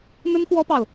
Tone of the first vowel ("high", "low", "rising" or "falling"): high